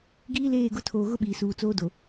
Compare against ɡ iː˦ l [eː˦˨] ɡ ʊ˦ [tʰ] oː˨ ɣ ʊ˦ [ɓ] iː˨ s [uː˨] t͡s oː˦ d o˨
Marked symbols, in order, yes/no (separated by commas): yes, yes, yes, yes